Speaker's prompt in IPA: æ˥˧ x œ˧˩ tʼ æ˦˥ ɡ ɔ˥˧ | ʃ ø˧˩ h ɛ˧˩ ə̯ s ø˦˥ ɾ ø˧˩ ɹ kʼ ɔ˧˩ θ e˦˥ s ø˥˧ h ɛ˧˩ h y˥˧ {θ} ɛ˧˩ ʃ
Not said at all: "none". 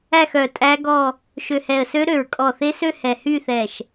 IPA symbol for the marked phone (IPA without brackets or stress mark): θ